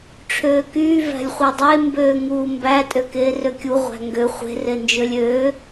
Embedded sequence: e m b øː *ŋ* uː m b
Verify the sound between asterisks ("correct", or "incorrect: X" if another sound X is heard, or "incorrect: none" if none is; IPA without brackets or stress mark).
correct